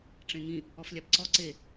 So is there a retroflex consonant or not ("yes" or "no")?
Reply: yes